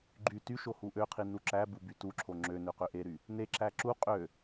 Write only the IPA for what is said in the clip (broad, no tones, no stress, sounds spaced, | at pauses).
ɡ͡ǃ y t y ʃ o h u ʔ ø qʰ i n u ǁ æ b u b y t u ǁʰ o ŋ͡ǁ ø n ø q ø ʔ e ɾ y | n e ǁ æ ǁ u qʼ ø